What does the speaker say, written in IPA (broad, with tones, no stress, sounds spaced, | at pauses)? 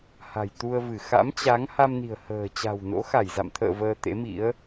h a̤˨˩ j t̪ u˧ ə̯ v ɨ˧˩ x a̰˧˥ m t͡ɕ a˨˦ ŋ h a˧ m n i̤˨˩ ə̯ h ə̤ː˨˩ t͡ɕ a̤˨˩ w n o̰˧˥ x a˧˩ j z a̰˧˨ m t̪ʰ ə̰ː˧˨ v əː˧ t̪ ḛ˧˥ m ḭ˧˥ ə̯